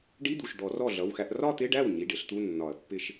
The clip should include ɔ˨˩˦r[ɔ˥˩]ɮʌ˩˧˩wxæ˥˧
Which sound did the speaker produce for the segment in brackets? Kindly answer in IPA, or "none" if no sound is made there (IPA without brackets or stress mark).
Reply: ɔ˥˩